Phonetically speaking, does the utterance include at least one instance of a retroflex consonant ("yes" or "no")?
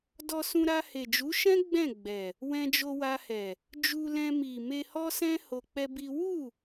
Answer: no